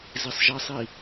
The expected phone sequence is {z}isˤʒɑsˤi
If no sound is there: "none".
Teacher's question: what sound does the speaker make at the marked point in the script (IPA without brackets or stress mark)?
z